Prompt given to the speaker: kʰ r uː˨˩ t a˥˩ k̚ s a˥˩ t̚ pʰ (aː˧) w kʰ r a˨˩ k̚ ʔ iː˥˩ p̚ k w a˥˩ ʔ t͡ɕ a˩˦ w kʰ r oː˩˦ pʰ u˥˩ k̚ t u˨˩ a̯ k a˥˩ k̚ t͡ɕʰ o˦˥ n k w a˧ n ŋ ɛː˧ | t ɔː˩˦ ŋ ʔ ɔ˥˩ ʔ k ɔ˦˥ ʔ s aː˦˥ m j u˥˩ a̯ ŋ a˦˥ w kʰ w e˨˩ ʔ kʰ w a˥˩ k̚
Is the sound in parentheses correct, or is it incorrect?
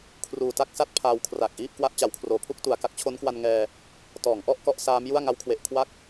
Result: correct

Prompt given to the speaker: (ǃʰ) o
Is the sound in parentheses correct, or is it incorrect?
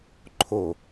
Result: correct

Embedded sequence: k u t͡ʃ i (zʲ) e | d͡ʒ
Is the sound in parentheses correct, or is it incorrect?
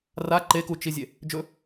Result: correct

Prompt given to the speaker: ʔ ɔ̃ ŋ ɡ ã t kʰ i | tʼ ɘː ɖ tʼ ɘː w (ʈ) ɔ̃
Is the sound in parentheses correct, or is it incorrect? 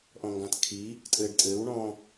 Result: incorrect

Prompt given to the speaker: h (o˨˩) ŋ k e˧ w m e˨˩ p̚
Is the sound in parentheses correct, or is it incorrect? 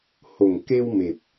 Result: correct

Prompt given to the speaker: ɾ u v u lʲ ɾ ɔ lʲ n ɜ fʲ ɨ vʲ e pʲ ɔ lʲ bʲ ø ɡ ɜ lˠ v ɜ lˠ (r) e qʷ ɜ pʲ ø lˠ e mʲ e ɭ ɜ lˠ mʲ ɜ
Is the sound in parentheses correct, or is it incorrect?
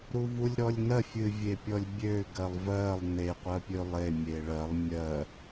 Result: incorrect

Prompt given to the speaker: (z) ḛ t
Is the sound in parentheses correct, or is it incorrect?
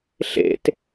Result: incorrect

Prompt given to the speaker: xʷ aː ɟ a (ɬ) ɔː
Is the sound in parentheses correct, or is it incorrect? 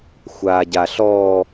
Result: correct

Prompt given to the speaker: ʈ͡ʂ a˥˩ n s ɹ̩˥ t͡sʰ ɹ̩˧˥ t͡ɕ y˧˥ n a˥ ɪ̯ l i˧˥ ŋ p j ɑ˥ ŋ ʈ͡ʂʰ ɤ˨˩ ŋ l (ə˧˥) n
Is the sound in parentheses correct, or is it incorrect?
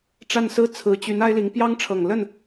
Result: incorrect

